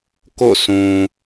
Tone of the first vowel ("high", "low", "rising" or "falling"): falling